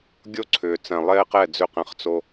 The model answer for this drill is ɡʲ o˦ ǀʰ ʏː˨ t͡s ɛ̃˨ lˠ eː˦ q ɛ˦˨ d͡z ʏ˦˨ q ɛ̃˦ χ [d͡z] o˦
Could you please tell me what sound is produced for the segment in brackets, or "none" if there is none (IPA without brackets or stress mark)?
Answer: t͡s